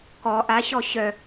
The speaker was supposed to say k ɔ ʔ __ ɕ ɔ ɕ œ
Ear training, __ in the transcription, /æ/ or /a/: a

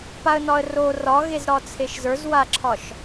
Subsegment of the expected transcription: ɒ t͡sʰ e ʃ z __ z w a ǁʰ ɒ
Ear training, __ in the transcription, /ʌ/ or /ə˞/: ə˞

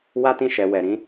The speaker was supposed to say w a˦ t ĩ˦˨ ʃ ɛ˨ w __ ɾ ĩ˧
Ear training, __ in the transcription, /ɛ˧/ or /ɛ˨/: ɛ˨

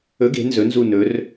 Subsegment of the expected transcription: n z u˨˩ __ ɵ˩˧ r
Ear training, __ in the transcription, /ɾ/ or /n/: n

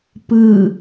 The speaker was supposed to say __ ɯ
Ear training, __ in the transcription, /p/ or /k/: p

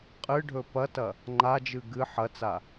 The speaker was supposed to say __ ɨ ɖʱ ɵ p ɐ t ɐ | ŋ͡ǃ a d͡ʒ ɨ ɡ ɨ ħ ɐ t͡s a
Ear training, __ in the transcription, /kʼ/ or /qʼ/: qʼ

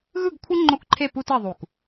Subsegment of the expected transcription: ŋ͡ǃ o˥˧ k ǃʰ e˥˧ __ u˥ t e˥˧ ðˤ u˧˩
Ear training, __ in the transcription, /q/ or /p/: p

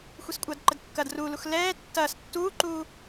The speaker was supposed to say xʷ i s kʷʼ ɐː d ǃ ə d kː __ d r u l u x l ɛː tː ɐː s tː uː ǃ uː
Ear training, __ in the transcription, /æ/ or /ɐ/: ɐ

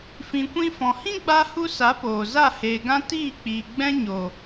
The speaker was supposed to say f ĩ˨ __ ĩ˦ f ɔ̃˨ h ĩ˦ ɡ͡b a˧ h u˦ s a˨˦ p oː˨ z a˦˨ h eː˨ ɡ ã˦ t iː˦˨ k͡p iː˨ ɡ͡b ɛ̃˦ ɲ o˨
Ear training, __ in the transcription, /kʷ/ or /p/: kʷ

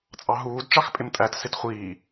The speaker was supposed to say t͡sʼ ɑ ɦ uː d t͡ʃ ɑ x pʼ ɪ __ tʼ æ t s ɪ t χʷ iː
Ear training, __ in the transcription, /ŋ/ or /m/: m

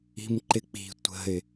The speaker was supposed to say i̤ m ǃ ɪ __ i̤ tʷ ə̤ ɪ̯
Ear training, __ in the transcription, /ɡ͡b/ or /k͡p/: k͡p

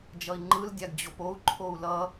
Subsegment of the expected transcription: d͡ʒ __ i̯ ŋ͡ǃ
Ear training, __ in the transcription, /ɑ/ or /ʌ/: ʌ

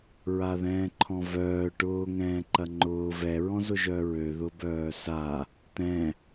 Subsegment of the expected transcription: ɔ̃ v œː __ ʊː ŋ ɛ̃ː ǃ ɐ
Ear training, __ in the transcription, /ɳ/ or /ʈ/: ʈ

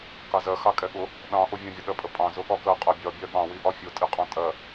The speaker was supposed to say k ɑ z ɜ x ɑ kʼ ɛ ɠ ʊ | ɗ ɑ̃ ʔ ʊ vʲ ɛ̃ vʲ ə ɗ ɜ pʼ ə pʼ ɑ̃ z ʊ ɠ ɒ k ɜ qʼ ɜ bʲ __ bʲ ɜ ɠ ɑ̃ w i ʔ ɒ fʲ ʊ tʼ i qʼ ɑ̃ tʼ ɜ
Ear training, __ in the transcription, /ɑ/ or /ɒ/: ɒ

